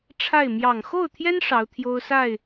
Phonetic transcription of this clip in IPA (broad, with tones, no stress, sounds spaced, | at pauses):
ʈ͡ʂʰ a˥˩ ɪ̯ m j ɑ˨˩ ŋ x o˥˩ ʊ̯ t̪ʰ j ɛ˥ n ʂ ɑ˧˥ ʊ̯ t̪ʰ j o˥ ʊ̯ s a˥˩ ɪ̯